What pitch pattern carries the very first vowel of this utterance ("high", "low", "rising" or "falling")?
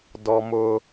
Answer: high